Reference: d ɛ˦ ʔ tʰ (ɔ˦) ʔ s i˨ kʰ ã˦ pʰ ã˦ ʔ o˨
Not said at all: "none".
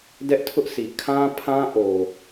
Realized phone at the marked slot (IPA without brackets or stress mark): ʊ˦